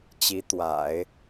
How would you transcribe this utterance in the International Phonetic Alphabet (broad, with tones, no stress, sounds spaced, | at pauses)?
t͡ɕ i˧˥ t̪ w a̰˨˩˦ ɪ̯